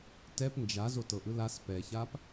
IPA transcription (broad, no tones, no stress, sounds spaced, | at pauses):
t ɛ p n d͡ʒ a z o t ɤ ʔ ɯ l a s p ɛ ç a p